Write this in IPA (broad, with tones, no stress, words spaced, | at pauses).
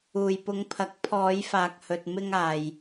uː˨jpʊ˨˧ŋpʰɐ˨˥k̚ pʰɔː˨˧jfaː˨k̚ hɵ˨t̚mɪ˧ŋ aː˨j